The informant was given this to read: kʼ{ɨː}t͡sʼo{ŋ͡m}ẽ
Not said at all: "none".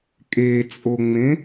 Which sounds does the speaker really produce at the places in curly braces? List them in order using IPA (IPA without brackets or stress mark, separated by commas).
eː, ŋ͡m